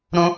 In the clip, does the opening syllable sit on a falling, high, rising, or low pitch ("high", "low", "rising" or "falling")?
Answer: high